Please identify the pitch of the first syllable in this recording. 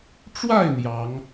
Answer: falling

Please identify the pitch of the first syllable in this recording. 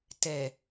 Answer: low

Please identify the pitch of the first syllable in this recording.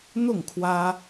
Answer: falling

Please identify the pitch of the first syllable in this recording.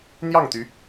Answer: falling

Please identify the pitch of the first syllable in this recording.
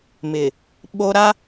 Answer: low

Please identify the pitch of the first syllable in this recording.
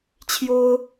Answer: high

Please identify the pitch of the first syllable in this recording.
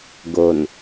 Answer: low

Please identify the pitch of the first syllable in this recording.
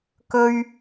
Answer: high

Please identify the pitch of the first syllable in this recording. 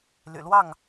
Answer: low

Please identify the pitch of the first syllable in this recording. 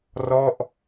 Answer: falling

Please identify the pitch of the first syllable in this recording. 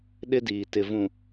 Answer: high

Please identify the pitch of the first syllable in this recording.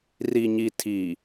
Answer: low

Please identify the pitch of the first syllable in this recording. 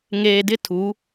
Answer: low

